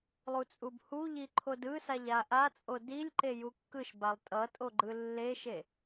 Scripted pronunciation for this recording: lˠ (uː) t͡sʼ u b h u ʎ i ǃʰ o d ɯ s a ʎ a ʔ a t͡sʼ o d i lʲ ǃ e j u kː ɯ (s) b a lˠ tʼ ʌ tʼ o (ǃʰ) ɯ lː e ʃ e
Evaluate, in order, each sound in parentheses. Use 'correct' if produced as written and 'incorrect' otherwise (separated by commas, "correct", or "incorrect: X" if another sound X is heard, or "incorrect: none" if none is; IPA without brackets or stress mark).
incorrect: u, incorrect: ʃ, incorrect: ɡ͡ǃ